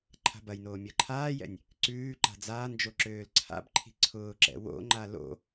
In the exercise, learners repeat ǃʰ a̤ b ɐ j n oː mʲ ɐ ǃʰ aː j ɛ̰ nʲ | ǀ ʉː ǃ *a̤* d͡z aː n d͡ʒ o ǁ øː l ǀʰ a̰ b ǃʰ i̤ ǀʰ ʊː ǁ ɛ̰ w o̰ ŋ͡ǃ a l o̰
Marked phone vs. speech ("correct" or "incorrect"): correct